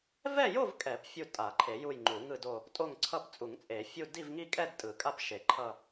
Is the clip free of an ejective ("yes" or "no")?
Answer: no